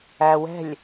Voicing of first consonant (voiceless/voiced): voiced